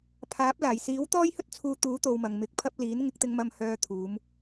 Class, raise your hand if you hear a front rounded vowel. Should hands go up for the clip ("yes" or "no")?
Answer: yes